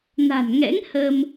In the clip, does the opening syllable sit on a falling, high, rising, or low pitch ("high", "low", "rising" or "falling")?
low